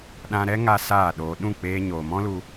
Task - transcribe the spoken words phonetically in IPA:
ɗã˧ɾɛ˦ ŋa˦saː˦˨ɗoː˧ ɗũ˦˨k͡peː˧ ɲoː˨mɔ̃˦lu˧

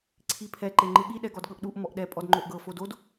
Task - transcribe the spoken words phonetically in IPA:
ǀʰipʰɛ ǃeŋ͡ǃɯɠi ɗɛɡɔdɠɤʔɗuʔ mɔʔɗɛ pʼɔdŋ͡ǃoʔɡɤ fodod

